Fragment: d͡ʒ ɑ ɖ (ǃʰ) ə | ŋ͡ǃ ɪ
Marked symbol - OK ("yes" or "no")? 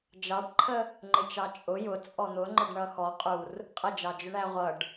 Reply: yes